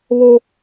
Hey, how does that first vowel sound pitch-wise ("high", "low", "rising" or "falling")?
high